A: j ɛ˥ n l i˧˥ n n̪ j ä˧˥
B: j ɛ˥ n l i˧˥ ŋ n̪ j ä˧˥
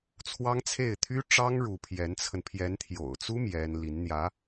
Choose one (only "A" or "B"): A